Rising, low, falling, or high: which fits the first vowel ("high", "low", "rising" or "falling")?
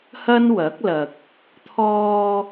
high